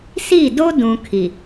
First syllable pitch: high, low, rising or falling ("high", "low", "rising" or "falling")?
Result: falling